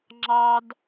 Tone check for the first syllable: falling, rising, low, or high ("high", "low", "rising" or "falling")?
high